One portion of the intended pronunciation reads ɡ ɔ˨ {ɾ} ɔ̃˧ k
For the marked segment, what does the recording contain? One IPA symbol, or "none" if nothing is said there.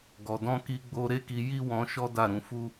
d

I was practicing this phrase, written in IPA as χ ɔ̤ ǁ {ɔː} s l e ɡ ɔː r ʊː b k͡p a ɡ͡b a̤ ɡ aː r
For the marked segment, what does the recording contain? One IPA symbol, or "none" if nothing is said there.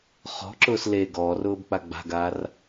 ʊː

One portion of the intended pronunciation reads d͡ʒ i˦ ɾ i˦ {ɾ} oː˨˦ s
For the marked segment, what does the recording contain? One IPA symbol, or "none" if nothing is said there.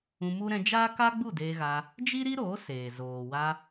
ɾ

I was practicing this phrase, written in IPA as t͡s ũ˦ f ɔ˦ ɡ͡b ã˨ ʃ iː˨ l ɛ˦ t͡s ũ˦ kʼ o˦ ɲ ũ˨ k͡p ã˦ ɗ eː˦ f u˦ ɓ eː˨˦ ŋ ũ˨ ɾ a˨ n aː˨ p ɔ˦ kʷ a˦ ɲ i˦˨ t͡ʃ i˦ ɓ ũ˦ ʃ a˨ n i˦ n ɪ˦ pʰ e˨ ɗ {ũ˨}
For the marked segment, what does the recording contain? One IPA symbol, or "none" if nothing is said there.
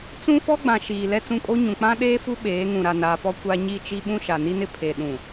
ũ˨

